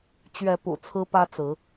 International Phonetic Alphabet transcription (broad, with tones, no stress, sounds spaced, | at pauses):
t͡ɕ ɥ ɛ˨˦ p ṵ˨˩ t͡sʰ ɹ̩˦ p ä˦ t͡s ɹ̩˨˦